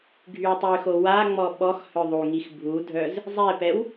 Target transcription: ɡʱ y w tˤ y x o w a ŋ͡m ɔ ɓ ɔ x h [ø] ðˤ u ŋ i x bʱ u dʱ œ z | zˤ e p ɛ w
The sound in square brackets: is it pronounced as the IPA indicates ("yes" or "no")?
no